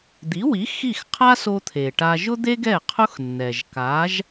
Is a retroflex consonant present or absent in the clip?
present